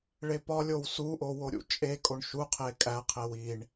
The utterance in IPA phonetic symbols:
ɭepɒlʲow suʔo woɾʲṵt͡ʃʼekʼoɳ ʃuqʰe kʼæqʰe wiɳ

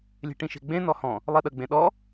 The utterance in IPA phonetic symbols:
lʲe̤ʈĩʃe̤ɡ͡bẽ nɔhɔ̃ | lˠiɗə ɡ͡bẽɗɔ

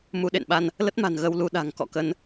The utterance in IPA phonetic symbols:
mu˨˦ɗḛ˧˨nɓa˧n | lə˦˥t̚ma̤˨˩n ɣə˧wlu˧ɗa̤˨˩ŋ kɔ̰˧˨kə˧n

